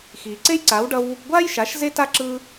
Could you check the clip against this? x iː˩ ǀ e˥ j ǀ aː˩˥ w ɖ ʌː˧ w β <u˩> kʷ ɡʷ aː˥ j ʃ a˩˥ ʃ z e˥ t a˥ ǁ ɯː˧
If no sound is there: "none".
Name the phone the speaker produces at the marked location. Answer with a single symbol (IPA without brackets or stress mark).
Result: u˧